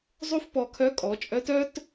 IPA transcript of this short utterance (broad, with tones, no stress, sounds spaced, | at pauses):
zˤ u˥ f p ɔ˧ kʰ œ˧˥ kʼ ɔ˩˧ t͡ʃʼ œ˧˥ t œ˥ t